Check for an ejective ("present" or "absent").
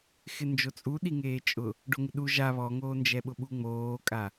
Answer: present